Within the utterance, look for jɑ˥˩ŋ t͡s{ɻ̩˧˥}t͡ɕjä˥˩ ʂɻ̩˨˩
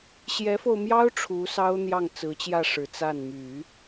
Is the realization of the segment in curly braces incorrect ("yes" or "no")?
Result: yes